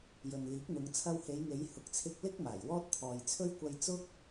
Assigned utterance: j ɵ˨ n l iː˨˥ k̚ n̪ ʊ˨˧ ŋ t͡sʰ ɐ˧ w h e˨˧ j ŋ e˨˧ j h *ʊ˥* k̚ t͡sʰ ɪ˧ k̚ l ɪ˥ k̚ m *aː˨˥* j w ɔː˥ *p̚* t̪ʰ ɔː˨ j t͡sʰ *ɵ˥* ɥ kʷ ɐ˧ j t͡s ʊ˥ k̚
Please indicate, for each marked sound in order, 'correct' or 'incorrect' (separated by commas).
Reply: incorrect, incorrect, incorrect, correct